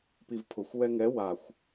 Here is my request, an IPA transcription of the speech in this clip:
p i v pʰ ʊ xʷ w ɛ ŋ ɛ w a xʷ

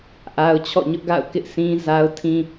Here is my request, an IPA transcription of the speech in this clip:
ʔ a˦ ʊ̯ t͡ɕʰ ɔ̰˦˨ ɲ ʊ˦ ʔ ɡ a̰˦˨ ʊ̯ k ɪ˦ ʔ s ĩ˦ z a˦ ʊ̯ tʰ ĩ˦

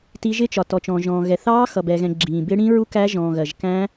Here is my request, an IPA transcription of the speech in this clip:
t i˦˥ ʒ ɪ˦˥ t͡ʃ ɒ˨ t ɔ˨ t͡ʃ ɔ̃ː˨ ʒ ɔ̃ː˨ ɣ ɛ˨ θ ɑː˦˥ x ʌ˨ b ɛ˨ ɣ ɛ̃˨ ɡ͡ǁ ĩː˨ b ɪ˦˥ ɽ ĩː˦˥ ɹ u˦˥ k æ˦˥ ʒ ɔ̃ː˨ ɣ ɜ˨ ʒ k æ̃˦˥

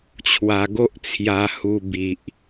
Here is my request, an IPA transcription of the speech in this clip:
t͡ɕʰ w a˧ ɡ o˦ ʔ t͡sʰ j a˧ h u˧ b i˨ ʔ

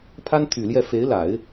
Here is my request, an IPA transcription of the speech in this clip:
pʰ a˥ n t̪ʰ y˨˩ l j ɛ˥˩ f e˧˥ ɪ̯ l a˨˩˦ ɪ̯

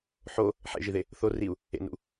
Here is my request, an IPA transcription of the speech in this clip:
ħ o | ħ ḛ ʒ i ð e | θ o r i u̯ | ḛ n ṵ

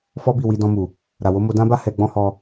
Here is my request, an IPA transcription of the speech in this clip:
f ɔ˦ b i˦˨ w i˧ d ɔ̃˧ m u˨ | ɾ a˨ w o˨˦ m o˧ d ã˦ b a˦ h ɛ˧ ɡ͡b ɔ̃˦ h ɔ˧

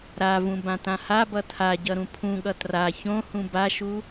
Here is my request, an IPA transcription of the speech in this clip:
ɾ a v ũ b ã t ã h a b ʌ tʰ a ɟ ʌ ɾ ũ pʰ ũ ɠ ʌ t r a ç õ h ũ b a ʃ u

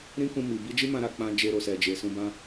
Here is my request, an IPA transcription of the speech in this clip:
ɾ ĩ˦ k ũ˧ m i˨ b i˧ d͡ʒ i˦ m ã˧ ɾ a˨ k͡p ã˧ d͡ʒ e˧ ɾ o˨ s ɛ˨ d͡ʒ e˨ s ũ˧ b ã˦

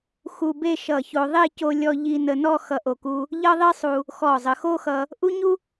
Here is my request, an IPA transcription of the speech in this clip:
x u˧ b e˥˧ ʃ ʌ˧˩ ç o˧ ðˤ e˥˧ c o˧ lʲ ɔ˧ ʎ i˧ n ə˧ n ɔ˥˧ x ʌ˧˩ ʔ o˧˩ k u˧ | ʎ ʌ˥ ðˤ i˥ sˤ u˧ | x ɔ˧˩ zˤ ə˩˧ x o˥ x ʌ˧ | ʔ u˥ ɲ u˥

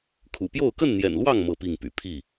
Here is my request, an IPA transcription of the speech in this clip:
kʰ ṵ˨˩ p j o˥˨ ʊ̯ k ə˥˨ n n̪ j ɛ̰˨˩ n l w ɑ˥˨ ŋ m ɤ˥˨ p i˥˨ ŋ p y̰˨˩ pʰ i˥˨

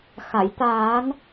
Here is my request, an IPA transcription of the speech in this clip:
x a˨˩˨ j t̪ aː˨˩˦ n

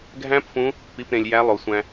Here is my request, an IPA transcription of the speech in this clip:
ɡʱ æ̃˦˥ p f ũ˨˦ | p i˩˧˩ p ɾ ẽ˩ lʲ j æ˨˦ lˠ o˩ sʷ æ̃˩

